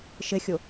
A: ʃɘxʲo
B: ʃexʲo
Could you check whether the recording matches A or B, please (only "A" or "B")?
A